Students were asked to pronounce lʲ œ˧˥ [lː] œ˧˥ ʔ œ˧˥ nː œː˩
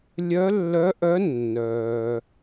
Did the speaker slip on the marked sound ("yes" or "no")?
no